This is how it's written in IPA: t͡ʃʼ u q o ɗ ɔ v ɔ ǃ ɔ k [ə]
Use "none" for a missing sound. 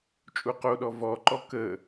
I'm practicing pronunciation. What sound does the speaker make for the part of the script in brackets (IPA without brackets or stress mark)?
ə